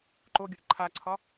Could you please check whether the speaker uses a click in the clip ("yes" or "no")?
yes